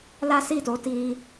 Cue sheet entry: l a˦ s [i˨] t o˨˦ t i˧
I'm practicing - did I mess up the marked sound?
yes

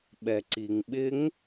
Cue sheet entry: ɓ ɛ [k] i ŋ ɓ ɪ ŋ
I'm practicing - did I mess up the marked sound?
yes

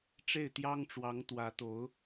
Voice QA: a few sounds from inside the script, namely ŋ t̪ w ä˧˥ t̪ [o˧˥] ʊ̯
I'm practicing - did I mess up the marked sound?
no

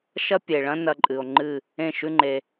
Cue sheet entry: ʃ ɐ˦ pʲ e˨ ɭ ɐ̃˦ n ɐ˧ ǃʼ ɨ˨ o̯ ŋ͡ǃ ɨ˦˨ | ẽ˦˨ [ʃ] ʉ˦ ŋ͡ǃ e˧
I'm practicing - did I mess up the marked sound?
no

